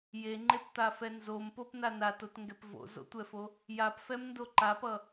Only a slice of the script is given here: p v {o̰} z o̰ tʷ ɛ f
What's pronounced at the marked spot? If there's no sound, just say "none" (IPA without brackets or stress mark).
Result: o̰